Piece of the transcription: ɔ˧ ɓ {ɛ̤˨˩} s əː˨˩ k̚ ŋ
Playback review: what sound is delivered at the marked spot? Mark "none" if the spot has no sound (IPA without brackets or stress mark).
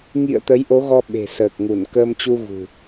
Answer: e̤˨˩